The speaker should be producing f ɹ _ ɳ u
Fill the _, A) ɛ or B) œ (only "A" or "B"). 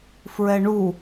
A